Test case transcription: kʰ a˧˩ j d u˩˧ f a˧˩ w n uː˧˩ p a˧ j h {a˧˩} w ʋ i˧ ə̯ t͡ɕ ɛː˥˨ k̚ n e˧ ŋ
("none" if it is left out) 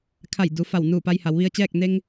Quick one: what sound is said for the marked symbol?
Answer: a˩˧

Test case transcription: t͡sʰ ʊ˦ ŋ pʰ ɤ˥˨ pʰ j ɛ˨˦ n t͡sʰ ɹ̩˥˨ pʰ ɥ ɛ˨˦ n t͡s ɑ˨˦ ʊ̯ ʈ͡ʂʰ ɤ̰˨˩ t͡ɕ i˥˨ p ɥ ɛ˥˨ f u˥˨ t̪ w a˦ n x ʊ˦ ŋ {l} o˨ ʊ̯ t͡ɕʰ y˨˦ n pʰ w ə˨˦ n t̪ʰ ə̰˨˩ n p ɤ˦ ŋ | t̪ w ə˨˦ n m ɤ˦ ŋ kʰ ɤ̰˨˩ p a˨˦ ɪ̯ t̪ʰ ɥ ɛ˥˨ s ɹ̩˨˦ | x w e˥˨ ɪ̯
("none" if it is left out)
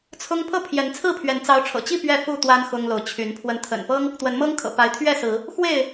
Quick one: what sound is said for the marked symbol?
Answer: l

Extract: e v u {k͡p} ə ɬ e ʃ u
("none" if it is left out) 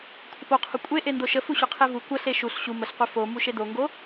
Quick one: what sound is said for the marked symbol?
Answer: kʷ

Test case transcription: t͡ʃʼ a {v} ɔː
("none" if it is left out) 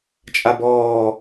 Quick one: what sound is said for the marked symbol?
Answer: b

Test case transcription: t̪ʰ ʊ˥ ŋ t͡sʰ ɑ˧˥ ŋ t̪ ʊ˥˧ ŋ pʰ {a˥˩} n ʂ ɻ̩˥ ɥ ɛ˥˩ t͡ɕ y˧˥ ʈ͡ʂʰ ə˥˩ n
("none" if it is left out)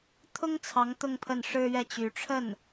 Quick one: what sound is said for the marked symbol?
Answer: ə˥˩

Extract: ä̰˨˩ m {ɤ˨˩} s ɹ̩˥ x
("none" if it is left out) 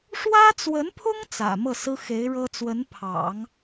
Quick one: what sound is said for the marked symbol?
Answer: ɤ˥˩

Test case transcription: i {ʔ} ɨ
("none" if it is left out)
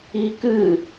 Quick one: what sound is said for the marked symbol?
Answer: k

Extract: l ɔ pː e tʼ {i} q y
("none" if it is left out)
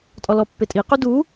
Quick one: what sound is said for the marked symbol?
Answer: i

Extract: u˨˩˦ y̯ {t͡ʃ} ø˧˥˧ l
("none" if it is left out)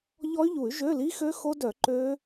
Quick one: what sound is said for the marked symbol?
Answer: ʒ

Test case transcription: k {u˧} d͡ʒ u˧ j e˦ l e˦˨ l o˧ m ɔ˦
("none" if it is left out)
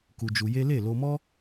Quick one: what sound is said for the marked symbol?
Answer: u˧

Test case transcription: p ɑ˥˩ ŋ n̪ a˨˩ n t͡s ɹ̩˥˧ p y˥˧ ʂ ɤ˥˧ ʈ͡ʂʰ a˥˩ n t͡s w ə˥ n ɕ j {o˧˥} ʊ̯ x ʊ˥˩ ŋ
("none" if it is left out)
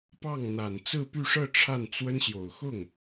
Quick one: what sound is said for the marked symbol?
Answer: o˨˩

